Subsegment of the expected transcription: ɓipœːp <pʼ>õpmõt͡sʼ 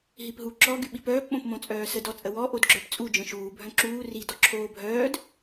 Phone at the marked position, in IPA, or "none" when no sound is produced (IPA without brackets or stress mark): ɓ